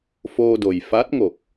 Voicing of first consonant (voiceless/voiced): voiceless